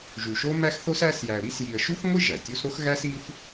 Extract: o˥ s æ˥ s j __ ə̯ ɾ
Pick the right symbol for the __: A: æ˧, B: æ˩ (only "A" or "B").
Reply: A